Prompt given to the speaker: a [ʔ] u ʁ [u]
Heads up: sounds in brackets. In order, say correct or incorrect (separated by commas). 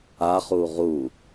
incorrect, correct